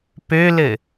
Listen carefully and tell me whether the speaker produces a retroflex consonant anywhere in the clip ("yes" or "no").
no